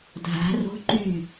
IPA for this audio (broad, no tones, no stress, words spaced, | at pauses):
dʱa̤ ro̤ ǃy